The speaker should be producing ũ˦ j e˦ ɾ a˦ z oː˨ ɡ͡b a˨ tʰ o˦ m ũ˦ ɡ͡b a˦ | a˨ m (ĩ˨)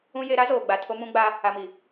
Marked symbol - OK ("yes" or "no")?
no